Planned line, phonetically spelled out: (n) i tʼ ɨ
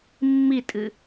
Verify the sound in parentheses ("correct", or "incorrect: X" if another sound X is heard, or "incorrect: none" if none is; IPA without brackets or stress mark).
incorrect: mː